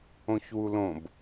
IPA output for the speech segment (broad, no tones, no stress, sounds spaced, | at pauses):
õ ç w u l õ b